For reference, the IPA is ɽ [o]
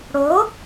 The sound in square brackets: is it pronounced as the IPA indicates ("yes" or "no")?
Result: yes